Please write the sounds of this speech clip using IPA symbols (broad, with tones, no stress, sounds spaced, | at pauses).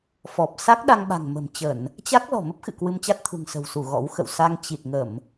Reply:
f ɔ˨˩ p̚ s a˦˥ k̚ ɗ a˧ ŋ ɓ a̤˨˩ ŋ m ə̤˨˩ m t͡ɕ ə˧˩˨ n | t͡ɕ a˦˥ k̚ l ɔ̤˨˩ m ə˦˥ p̚ x ɨ̰˧˨ k w ɨ˧ m t͡ɕ a˦˥ t̚ t̪ʰ ṳ˨˩ ŋ s ə̤˨˩ w s u˧˩ ɣ ɔ̰˧˥ w x ə̰˧˨ w s a˧ ŋ t͡ɕ i˨˩ t̚ ŋ ə˧˩˨ m